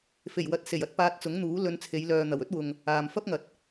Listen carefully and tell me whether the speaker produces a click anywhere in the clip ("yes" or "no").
no